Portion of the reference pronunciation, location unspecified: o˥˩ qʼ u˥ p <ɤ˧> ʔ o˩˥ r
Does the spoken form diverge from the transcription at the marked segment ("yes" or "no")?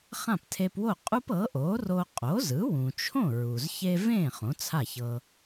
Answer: yes